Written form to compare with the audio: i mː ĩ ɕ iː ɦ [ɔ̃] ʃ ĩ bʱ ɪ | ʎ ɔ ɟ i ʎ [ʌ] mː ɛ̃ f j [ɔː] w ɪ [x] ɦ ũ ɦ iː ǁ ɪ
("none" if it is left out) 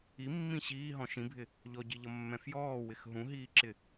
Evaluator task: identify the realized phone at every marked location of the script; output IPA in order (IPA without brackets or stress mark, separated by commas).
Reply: ɔ̃, ʌ, ɔː, x